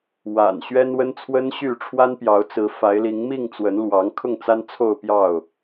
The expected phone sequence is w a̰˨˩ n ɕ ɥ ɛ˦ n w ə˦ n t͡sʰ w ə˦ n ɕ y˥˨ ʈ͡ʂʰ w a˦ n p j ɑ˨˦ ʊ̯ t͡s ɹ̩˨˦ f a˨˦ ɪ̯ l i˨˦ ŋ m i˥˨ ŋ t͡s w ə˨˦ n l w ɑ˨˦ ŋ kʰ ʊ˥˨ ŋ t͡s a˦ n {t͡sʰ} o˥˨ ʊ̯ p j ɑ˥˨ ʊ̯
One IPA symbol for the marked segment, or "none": t͡sʰ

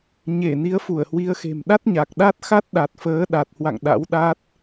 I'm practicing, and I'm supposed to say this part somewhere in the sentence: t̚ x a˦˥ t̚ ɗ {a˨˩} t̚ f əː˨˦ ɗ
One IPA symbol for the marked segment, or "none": a˨˩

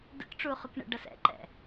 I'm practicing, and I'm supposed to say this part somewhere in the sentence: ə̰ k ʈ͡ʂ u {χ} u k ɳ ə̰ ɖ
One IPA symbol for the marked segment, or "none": χ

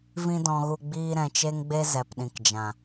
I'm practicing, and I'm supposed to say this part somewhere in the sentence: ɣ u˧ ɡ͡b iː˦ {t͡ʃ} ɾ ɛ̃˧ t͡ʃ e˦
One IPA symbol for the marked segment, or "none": none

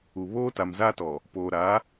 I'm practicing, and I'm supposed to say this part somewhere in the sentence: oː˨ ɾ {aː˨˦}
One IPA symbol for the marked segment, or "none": aː˨˦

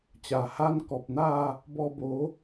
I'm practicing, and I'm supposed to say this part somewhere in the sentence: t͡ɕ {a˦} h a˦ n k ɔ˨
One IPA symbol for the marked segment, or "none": a˨˩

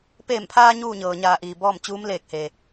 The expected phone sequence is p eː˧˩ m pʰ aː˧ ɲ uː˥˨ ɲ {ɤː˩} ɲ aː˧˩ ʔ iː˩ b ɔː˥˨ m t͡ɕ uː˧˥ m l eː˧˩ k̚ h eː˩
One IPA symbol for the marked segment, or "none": ɤː˩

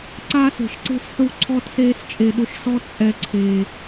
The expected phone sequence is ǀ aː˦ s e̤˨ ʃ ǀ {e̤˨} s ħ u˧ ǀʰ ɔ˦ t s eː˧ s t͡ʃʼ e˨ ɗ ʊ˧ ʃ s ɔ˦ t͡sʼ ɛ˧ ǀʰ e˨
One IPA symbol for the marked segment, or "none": e̤˦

